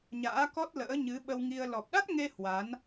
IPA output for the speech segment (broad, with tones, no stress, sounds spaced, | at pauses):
ɲ a̰ː˧˥ k ɔ˦˥ t̚ l ə̰ː˧˥ ɲ ɨ˨˦ ɓ ə˧ w ŋ i˧ ə̯ l ɔ˨˩ p̚ ɗ a˦˥ t̚ ŋ e˧ h w a˨˦ n